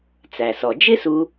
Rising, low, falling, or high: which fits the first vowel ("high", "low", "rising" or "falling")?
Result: low